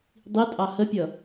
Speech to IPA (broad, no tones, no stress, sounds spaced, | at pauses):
dˤ i tʼ ɑ h ə pʲ ʌ